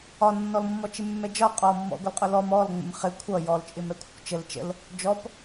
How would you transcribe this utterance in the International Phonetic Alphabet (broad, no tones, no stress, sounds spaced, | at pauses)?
ɒ nː ɔ l mː ɔ t͡ʃ ɪ mː ɛ d͡ʒ ɒ qʼ ɔ mː ɔ̰ ɡʷ ə l qʼ ʊ l ɔ m ɔ l ŋ͡m ə̰ m χ ɪ kʷʰ ʌ j ɔ l t͡ʃʼ ɪ m ɛ kʷʰ ə̰ kʷ t͡ʃ ə l t͡ʃ ə̰ l | d͡ʒ ɔ p